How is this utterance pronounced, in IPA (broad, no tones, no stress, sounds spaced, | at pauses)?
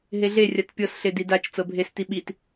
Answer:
ɦ e ɮ e rʲ a t pʲ ɤ s ɬ e d i d a t͡ʃ t͡s ɤ bʱ e s t i ɓ i t